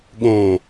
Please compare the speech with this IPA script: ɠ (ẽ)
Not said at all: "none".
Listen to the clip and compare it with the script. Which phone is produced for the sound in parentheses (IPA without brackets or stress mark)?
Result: ẽ